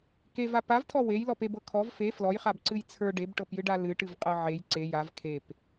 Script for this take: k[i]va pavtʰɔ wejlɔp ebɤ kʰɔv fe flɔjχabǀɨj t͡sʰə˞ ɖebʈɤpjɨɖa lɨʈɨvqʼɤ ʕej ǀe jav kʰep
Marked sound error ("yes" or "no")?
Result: yes